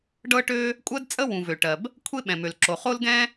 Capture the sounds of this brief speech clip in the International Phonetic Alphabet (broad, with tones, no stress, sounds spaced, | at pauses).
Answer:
ɖ ɤ˥ ʈ ø˥ | kʷʼ ɜ˥ d t͡sʼ ə˥ w ũ˩ v ø˩ ʈ ɜ˩ b | kʷʰ e˥ ɓ ɛ̃˩ m ø˩ l ǁ o˩ χ o˥ l ɡ ɛ̃˥